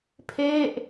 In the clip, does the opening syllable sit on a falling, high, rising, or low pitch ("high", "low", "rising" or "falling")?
falling